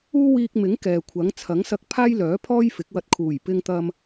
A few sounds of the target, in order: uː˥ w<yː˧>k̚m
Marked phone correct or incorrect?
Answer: incorrect